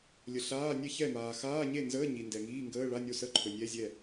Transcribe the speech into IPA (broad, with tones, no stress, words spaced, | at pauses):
lʲə˨ɬaː˧˥˧nʲɛ˥˨çɛ˥˨ maː˨ xaː˧˥˧ɲe˥˨nzəː˧˥˧ ɲi˨ndɛ˨ŋiː˧˥˧ ŋɡəː˧˥˧ɭa˧˥˧ nʲo˥˨sə˥˨ǃʰɵ˨ nʲɛ˧˥˧zʲɛ˥˨